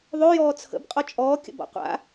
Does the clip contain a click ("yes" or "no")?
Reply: no